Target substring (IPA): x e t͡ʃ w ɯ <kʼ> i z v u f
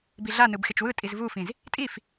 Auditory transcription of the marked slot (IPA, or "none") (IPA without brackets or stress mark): tʼ